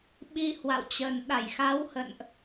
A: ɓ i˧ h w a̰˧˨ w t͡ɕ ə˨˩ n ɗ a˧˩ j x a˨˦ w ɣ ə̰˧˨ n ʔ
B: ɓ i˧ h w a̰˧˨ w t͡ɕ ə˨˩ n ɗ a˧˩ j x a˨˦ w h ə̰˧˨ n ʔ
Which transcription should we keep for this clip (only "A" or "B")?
B